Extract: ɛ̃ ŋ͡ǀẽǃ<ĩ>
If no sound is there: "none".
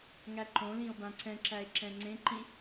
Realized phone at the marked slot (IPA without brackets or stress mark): ĩ